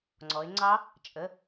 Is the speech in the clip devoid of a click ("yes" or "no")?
no